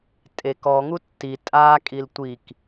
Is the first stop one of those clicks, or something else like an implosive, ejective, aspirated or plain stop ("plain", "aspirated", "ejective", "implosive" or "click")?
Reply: ejective